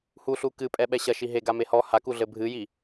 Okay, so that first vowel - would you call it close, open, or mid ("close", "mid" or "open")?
close